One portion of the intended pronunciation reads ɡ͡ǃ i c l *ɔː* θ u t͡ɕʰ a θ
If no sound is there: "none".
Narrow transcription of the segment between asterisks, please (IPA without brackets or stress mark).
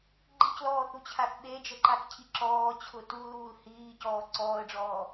ɔː